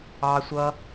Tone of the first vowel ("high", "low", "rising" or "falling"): low